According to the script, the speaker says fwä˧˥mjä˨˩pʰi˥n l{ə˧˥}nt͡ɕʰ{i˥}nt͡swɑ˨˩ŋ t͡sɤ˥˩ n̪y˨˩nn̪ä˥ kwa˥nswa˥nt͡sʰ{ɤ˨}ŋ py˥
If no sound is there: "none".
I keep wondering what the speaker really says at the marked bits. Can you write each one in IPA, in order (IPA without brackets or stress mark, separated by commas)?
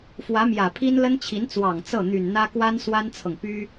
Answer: ə˥, i˧˥, ɤ˨